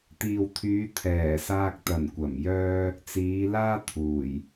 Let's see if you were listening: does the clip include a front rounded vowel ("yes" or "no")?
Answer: yes